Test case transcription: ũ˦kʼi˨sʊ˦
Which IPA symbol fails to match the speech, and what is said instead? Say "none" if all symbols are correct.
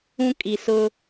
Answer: none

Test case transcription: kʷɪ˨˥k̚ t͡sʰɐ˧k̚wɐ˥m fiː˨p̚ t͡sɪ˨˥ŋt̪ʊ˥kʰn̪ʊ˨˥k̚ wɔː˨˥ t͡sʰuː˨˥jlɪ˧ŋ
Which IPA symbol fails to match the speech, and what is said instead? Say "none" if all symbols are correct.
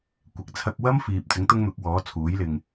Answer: kʰ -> ŋ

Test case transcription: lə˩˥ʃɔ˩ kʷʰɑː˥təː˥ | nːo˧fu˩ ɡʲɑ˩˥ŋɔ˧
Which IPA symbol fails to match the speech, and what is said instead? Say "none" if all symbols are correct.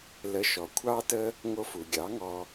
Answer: nː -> ŋ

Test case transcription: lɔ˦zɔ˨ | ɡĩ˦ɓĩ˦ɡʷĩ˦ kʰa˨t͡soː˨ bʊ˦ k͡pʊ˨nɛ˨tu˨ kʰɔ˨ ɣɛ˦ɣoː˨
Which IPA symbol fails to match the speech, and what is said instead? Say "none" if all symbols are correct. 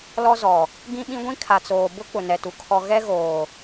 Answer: none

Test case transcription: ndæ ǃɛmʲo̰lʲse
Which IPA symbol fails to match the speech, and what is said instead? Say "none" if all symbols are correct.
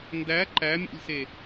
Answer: ɛ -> æ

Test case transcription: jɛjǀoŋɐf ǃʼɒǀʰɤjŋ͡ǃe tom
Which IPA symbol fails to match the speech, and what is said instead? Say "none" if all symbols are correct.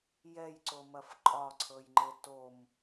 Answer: ŋ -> m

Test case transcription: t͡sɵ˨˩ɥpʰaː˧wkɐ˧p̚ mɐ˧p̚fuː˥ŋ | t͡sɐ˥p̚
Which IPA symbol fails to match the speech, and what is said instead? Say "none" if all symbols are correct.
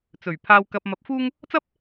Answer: none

